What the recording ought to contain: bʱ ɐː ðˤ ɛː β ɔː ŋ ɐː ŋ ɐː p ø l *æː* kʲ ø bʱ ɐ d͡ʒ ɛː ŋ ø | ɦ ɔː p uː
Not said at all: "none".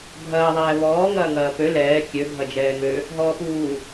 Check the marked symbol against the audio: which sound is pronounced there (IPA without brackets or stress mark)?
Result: ɛː